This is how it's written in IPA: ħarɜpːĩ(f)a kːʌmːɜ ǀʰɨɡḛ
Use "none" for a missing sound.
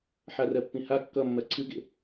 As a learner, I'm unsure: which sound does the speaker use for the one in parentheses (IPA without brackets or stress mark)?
h